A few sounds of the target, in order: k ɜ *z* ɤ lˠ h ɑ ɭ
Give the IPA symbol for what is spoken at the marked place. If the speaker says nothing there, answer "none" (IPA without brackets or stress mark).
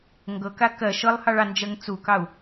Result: ʃ